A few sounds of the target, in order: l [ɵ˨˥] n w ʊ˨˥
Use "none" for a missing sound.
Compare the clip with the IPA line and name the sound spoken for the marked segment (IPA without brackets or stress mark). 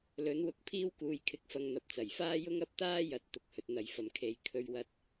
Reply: ɵ˨˥